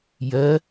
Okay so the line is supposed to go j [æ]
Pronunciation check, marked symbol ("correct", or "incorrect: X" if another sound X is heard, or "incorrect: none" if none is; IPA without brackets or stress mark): incorrect: ɜ